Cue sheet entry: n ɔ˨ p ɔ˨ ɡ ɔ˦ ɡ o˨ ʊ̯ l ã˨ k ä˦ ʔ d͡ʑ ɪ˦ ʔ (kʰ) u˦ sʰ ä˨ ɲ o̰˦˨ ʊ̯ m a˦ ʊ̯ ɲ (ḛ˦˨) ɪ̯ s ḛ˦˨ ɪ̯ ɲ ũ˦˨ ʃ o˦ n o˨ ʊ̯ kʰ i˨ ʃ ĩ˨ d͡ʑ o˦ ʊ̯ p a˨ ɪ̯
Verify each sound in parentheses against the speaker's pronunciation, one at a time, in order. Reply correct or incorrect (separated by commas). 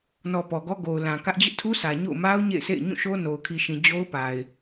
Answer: incorrect, correct